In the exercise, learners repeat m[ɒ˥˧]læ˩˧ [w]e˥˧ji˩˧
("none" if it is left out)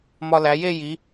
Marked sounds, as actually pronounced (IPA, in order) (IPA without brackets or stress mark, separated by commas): ɒ˧, j